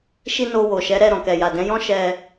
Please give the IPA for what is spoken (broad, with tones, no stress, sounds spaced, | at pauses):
ʃ i˧ n o˧ w o˨ ʃ ɛ˨˦ ɾ ɛ˦˨ ɾ ɔ̃˨ k ɛ˨ j a˨ d ɛ̃˨˦ j ɔ̃˦ ʃ ɛ˧